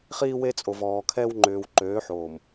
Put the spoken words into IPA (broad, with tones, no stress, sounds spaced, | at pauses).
χ iː˦ w e˦ t͡sʼ o˨ v ɔː˨ kʰ ɛ˦ w ŋ͡ǃ ʏː˨ w ǃ øː˨˦ ħ oː˨ m